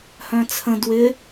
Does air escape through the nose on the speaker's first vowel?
yes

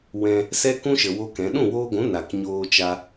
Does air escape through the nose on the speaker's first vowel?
yes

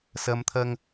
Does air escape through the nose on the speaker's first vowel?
no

